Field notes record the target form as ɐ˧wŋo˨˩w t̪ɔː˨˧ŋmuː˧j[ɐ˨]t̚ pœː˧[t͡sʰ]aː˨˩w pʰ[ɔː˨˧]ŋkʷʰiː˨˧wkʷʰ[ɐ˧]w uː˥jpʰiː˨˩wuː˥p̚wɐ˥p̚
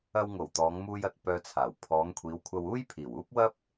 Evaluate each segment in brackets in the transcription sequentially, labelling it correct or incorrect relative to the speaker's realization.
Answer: correct, correct, correct, correct

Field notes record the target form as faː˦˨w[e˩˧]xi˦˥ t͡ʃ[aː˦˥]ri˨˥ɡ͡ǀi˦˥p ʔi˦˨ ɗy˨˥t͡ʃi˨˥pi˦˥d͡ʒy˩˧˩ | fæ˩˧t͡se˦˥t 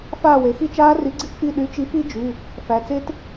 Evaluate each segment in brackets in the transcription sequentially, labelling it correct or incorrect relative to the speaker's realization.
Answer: correct, correct

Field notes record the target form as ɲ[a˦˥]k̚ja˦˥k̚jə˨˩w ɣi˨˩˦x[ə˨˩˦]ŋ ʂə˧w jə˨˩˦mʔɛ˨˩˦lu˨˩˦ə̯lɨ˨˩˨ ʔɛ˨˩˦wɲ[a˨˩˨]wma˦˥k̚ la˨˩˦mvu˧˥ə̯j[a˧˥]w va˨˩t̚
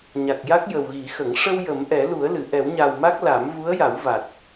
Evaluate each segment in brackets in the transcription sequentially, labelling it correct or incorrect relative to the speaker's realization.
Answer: incorrect: a˨˩, correct, incorrect: a˨˩, incorrect: a˨˩˦

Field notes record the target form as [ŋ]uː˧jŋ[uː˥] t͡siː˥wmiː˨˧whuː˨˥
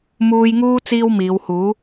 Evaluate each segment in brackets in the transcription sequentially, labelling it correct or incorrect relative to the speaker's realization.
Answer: incorrect: m, correct

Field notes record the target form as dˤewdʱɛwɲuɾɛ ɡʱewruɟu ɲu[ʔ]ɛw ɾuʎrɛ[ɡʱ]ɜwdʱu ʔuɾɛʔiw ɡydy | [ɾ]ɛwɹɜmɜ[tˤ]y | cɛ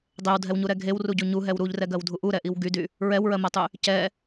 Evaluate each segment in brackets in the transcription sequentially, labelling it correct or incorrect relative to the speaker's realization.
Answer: incorrect: ɦ, incorrect: ɡ, incorrect: ɹ, correct

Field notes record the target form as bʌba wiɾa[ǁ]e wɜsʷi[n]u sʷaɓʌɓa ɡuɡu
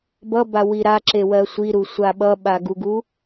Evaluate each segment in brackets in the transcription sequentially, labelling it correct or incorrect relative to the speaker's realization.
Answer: correct, incorrect: ɾ

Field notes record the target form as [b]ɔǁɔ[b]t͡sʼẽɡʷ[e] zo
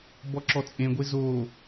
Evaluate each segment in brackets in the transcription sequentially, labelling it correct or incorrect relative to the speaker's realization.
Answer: correct, incorrect: none, correct

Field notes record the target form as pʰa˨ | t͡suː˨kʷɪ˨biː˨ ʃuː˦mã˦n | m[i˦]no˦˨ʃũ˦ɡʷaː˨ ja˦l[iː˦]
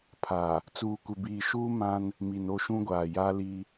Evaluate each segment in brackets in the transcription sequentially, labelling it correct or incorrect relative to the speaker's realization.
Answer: incorrect: i˨, incorrect: i˦

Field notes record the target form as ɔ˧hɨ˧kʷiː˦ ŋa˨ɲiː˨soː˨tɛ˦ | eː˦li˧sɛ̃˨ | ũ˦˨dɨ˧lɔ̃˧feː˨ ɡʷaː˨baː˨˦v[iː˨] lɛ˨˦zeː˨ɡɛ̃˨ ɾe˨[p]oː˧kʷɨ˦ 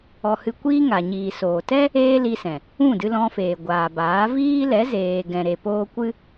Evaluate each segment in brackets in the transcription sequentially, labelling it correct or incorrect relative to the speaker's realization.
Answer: incorrect: iː˦, correct

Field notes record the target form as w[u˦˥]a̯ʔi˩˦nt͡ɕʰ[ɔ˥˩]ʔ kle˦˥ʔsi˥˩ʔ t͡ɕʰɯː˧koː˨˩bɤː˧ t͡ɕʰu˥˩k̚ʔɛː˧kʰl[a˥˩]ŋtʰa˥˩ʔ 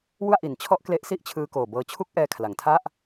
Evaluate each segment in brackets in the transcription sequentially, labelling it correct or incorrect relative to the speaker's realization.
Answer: incorrect: u˥˩, correct, incorrect: a˩˦

